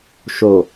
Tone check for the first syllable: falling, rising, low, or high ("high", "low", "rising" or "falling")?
low